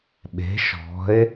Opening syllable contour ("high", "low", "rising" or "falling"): rising